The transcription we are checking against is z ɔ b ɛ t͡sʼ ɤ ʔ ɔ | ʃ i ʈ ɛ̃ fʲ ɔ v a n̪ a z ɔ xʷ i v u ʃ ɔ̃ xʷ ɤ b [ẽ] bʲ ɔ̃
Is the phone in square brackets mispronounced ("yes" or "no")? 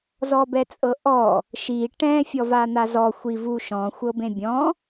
no